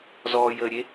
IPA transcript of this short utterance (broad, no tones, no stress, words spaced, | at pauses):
zɔː jəːɾʲe